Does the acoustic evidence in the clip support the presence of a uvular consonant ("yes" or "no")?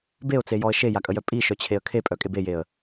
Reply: no